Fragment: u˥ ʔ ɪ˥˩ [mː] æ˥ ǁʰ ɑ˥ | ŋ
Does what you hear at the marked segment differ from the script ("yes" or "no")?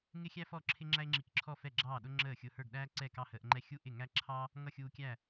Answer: yes